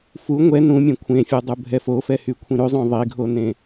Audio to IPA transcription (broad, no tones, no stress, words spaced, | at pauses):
fu ŋʷɛ nũmʲẽ kʷʰẽfʲʉdˤubʱɛ fofɛhykʷʰĩ ɾʉzˤõ ðˤiɡʱonẽ